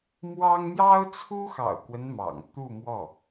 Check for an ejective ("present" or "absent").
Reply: absent